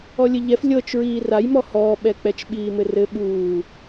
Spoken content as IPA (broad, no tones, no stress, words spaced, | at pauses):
ɔlʲɘʎɛf lʲɤt͡ʃɹiː rajmɔ hɔːɓɛk͡pɛt͡ʃɓiː mɘrɘ ɓuː